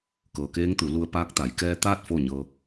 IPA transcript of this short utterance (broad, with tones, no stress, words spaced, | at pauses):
kɤː˩keː˧˥ŋt̪u˩˧lu˧ə̯ paː˧˥k̚t̪a˩˧j kɛː˧t̪aː˥˨t̚ fo˥˨ɲɤː˧